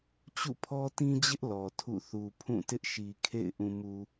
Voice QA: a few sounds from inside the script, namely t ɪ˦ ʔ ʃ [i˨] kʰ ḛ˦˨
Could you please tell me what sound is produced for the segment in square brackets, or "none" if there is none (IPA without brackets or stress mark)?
i˨